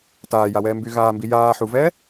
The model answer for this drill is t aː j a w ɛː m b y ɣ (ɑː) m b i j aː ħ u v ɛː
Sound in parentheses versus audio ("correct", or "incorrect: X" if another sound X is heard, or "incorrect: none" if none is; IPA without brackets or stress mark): incorrect: aː